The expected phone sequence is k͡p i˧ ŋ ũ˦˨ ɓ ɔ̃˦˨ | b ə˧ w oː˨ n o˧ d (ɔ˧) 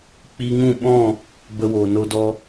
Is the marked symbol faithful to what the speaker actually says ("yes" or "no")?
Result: yes